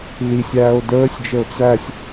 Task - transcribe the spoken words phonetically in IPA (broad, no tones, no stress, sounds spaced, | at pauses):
l i sʲ æː o̯ d əː sʲ d͡ʒ ə o̯ t͡s æ sʲ